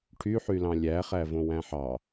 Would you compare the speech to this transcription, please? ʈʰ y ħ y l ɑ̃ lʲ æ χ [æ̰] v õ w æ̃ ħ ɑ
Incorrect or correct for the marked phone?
incorrect: æ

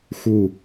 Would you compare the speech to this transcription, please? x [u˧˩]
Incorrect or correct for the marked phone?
correct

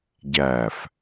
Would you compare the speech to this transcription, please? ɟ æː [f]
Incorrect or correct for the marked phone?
correct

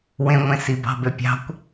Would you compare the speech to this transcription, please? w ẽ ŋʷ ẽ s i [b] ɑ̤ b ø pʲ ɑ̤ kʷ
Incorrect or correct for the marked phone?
correct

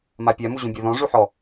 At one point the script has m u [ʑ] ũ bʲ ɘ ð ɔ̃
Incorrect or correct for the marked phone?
correct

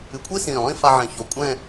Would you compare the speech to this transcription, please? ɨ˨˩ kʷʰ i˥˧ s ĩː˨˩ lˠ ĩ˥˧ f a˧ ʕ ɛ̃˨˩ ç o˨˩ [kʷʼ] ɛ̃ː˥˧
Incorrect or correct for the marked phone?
correct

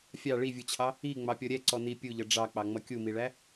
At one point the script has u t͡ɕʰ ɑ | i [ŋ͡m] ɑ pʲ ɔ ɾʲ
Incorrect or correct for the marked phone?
correct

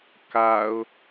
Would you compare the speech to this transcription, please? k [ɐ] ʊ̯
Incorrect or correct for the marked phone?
incorrect: a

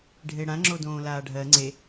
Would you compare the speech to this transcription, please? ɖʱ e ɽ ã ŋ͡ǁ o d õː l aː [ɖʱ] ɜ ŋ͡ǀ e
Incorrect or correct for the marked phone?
correct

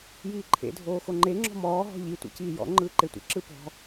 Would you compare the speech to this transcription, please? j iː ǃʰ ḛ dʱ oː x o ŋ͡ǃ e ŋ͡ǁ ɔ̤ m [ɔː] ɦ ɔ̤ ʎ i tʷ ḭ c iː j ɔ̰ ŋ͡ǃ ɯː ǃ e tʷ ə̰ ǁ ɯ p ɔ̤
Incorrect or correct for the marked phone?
correct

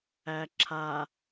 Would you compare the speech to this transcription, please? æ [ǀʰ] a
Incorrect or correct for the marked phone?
incorrect: ǁʰ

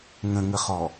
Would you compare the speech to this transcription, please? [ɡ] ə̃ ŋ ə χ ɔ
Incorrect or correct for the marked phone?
incorrect: ŋ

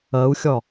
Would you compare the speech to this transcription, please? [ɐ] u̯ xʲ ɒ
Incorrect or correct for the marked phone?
correct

